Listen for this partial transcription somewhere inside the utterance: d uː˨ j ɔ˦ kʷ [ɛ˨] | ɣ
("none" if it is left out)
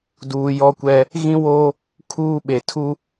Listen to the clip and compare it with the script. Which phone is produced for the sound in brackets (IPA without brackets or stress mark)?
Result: ɛ˦